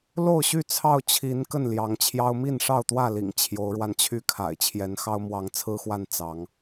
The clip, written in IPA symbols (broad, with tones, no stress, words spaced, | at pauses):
lo˥˨ʊ̯ɕy˥˨t͡sʰɑ˥˨ʊ̯ t͡ɕʰi˨˦n kə˥˨nljɑ˨˦ŋt͡ɕʰjɑ˦ʊ̯ mi˥˨nʂɑ˥˨ʊ̯t̪wä˥˨lḭ˨˩ŋ t͡ɕʰjo˨˦ʊ̯ɻwa˧nt͡ɕʰy˥˨kʰa̰˨˩ɪ̯ t͡ɕʰjɛ˨˦nxɑ˦ʊ̯mwɑ˨˦ŋ t͡sʰɹ̩˦xwa˥˨n t͡sɑ˨˦ŋ